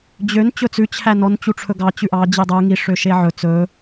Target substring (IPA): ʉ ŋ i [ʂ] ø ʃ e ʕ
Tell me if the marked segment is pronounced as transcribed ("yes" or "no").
yes